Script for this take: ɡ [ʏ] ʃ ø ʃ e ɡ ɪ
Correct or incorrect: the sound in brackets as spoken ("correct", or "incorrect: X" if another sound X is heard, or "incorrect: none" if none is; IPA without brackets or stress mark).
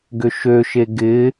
correct